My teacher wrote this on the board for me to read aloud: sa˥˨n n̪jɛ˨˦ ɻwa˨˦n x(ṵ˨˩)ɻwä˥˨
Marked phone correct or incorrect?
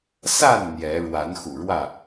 correct